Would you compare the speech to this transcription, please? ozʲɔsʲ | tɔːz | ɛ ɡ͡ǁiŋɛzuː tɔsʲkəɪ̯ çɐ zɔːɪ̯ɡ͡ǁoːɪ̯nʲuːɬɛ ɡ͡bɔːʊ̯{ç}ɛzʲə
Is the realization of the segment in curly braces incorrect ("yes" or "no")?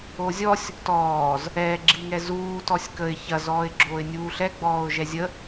yes